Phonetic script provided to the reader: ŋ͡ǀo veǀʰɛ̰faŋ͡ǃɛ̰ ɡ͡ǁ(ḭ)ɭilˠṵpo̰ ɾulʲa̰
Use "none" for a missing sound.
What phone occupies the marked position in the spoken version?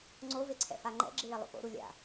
i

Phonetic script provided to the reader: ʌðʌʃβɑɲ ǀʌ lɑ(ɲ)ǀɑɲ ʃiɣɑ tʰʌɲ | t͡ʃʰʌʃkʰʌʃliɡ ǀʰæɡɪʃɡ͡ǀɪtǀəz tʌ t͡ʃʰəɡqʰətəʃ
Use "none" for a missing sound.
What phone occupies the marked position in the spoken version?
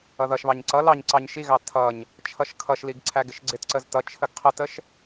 ɲ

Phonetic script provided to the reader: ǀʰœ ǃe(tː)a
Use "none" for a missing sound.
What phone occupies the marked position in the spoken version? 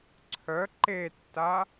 tː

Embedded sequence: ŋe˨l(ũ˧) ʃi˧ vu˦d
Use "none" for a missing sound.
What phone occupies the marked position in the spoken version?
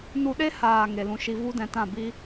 ũ˧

